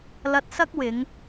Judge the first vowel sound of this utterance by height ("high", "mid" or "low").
low